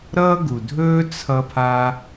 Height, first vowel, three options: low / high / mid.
mid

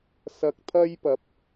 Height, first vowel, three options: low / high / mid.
low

